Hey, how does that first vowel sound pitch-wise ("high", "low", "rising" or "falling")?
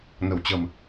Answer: low